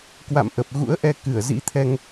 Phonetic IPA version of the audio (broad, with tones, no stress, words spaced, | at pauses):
kwa̰˧˨mʔə˨˩p̚ ɣṵ˧˥ə̯ʔɛ˧ kɨ˧˩ə̯ zḭ˧˥t̪ʰɛ˧ŋ